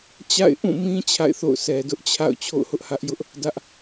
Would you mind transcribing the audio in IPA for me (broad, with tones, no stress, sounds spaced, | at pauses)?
t͡ɕ a̰˦˨ ɪ̯ ʔ ũ˦˨ m ĩ˦ t͡ɕʰ a̰˦˨ ɪ̯ θ o̰˦˨ ʊ̯ s ɛ˨ d ʊ˦ ʔ t͡ɕʰ a̰˦˨ ʊ̯ t͡ɕʰ o̰˦˨ ʊ̯ h ʊ˦ ʔ h ä˦ ʔ j ʊ˦ ʔ | d ä˦ ʔ